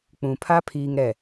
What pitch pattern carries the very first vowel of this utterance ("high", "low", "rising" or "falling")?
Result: low